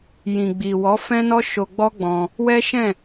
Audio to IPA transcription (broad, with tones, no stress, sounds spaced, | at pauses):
j ĩ˨ ɡ͡b i˨ w ɔ˨˦ f ɛ̃˦ n ɔ˦ ʃ o˧ ɡ͡b ɔ˦ ɡ͡b ɔ̃˧ | w ɛ˦ ʃ ɛ̃˦˨